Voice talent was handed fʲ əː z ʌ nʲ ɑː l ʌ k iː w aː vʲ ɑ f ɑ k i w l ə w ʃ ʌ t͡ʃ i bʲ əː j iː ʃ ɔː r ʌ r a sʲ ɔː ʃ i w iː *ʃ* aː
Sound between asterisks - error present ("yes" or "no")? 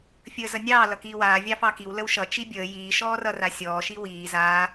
yes